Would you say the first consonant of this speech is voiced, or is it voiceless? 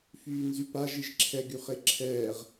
voiceless